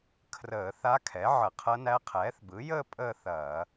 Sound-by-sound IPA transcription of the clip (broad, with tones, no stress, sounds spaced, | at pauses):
kʰ r əː˧˩˧ θ a˧˥ kʰ ɛ˩˥ ʕ ə˧˩˧ qʰ ɐ˧˥ n æ˧˥ qʰ ɛː˩˥ θ b ɯ˩˥ j əː˥˧ pʼ əː˥˧ θ ɐː˧˩˧